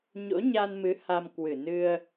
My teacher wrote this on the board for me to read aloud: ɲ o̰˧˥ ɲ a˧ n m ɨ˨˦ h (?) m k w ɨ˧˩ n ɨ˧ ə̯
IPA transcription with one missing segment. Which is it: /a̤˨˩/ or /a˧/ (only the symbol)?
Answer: a˧